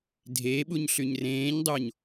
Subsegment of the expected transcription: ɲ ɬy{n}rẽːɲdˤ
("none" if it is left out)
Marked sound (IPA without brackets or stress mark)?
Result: ɲ